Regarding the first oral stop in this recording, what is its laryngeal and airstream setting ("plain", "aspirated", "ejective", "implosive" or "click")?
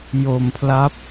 aspirated